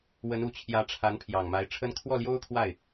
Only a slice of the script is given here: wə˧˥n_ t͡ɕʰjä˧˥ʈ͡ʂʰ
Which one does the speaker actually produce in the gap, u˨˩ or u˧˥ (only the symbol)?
u˨˩